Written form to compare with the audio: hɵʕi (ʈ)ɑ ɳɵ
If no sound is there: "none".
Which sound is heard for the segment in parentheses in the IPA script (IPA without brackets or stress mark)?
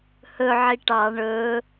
ʈ